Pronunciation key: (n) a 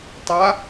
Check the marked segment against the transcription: incorrect: tˤ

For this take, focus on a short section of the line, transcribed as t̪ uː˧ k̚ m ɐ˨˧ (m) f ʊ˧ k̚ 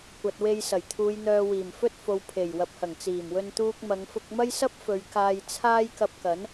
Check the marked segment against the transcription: incorrect: ŋ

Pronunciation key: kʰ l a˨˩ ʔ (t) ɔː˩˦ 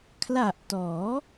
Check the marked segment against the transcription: correct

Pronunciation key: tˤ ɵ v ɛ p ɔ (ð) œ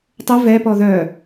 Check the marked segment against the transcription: correct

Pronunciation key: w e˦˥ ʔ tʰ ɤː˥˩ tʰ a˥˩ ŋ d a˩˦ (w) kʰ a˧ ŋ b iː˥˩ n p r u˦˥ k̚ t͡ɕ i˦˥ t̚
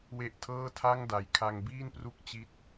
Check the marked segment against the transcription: incorrect: j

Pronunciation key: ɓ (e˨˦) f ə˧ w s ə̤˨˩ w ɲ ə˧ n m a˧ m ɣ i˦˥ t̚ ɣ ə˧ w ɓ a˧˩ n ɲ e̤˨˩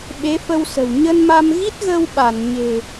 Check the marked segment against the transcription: correct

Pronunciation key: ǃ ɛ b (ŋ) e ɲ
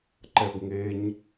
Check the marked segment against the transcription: correct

